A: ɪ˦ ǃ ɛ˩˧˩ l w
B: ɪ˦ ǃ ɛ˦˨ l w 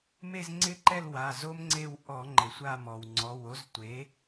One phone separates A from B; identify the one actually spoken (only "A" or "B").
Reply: B